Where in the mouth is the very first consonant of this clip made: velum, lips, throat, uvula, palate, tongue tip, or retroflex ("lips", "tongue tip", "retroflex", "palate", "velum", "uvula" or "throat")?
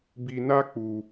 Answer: lips